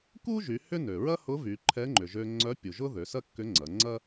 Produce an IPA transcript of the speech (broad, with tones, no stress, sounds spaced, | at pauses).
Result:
k u˥ ʒ y˩˧ h ʏ˥ n ø˩ ɹ ɐ˥ h ʊ˧˥ v y˩˧ ǃʰ ɛ˧˥ ŋ͡ǃ ʏ˩ ʒ ø˧ ŋ͡ǀ œ˧˥ pʲ u˩ ʒ ʊ˥ ð ø˩˧ s ɐ˥ kː ʏ˧˥ ŋ͡ǀ ɐ˩˧ ŋ͡ǀ ɐ˥